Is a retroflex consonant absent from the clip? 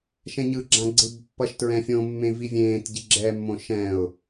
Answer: yes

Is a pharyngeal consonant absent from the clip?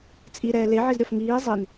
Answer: no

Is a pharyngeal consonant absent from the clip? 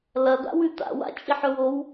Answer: no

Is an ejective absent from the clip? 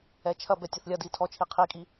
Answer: no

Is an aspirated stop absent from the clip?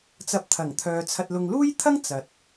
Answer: no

